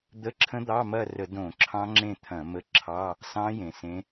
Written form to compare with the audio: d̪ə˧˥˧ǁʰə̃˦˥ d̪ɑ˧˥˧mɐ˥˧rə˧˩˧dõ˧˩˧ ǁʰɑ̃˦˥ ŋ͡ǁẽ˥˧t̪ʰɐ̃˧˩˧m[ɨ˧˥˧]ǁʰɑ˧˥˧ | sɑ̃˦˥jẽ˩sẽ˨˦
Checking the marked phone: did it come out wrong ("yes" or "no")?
yes